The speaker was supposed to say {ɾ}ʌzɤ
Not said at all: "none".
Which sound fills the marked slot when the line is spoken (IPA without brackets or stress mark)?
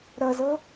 ɾ